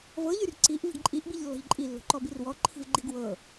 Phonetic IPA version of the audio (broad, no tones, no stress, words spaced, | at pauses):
vɤʎyr ǀiʔ vi̤ɡǃʼiʔbiʎ lːɔ̤ʎǃʼi lːo̤ǃɔbirwɔ ǃʰi̤vɡ͡ǃiɡwɤ